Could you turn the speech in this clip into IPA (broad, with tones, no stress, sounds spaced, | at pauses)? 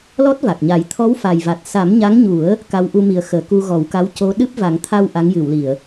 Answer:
l ɔ˦˥ t̚ v a˨˩ k̚ ɲ a˨˩˦ j t̪ʰ ɔ˧˥ w f a˨˩ j v a˨˩ t̚ s a˨˩˦ m ɲ a˧˥ ŋ ɲ u˨˩˦ ə̯ | k a˧˥ w ʔ u˧ m i˨˩ ə̯ x əː˨˩˨ k u˧ ɣ ɔ˨˩˦ w k a˧˥ w c o˧˥ ɗ ɨ˦˥ p̚ v a˨˩˦ ŋ t̪ʰ a˧ w ʔ a˧˥ ŋ j ɨ˨˩˨ w l i˨˩˨ ə̯